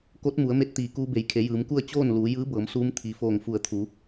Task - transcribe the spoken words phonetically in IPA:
k o˧˥ t̚ m u˩˧ ə̯ m e˧ t̚ t̪ iː˩ k uː˧ b e˩˧ j kʰ e˩˧ j ɯː˩˧ m k u˥˨ ə̯ t͡ɕ oː˥˨ n l uː˩˧ j ɯː˧˥ b ɤː˩˧ m s uː˧˥ m t̪ʰ i˩ f oː˧˩ ŋ f u˧˩ ə̯ t̪ʰ u˩˧

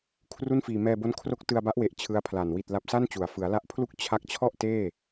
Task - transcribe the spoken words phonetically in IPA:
kʰ r u˥˩ n f iː˧ m ɛː˧ b o˦˥ n kʰ r o˦˥ k̚ t ɯ˧ a̯ b a˦˥ ʔ w e˨˩ ʔ t͡ɕʰ ɯ˦˥ a̯ pʰ l a˨˩ n w i˨˩ t̚ l a˨˩ p̚ s a˥˩ n t͡ɕ u˨˩ a̯ f ɯ˩˦ a̯ l a˦˥ ʔ pʰ l u˥˩ k̚ t͡ɕʰ a˦˥ k̚ t͡ɕʰ ɔ˥˩ ʔ t eː˥˩

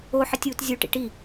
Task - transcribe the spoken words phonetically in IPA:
o ħ ɪ tʲ uː t zʲ u ʈ ḭ ʈ i

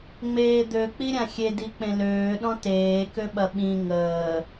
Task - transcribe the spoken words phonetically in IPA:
ŋ͡m eː d̪ ø k͡p i ɾʲ ã xʲ e d i k͡p ẽ l øː ɗ ɔ̃ t eː k ø ɓ ɐ ɓ ĩ ŋ əː

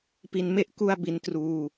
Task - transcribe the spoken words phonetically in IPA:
p i˧ n m e˥˩ ʔ k u˥˩ a̯ b i˦˥ n t r uː˧

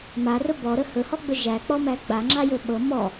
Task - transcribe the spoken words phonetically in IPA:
m a r ɵ b ɔ ɾ ə h ɵ h ɔ ɡ͡b ɵ ʒ æ k͡p ɔ m æ ɡ͡b a ŋ͡ǁ a j ɵ ɓ ɤ m ɔ

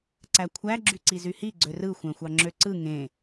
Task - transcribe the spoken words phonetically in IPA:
ǀ æ kʷʰ æ ɡ͡ǁ y ǀ i z y h i ɡ͡ǀ ø r ɯ xʷ æ̃ xʷ ɑ ŋ͡ǁ ø ǀ ɯ ŋ ẽ

